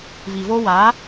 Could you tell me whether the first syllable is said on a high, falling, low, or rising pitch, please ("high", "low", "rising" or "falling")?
low